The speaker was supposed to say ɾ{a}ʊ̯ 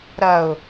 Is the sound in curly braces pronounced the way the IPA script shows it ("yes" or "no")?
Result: no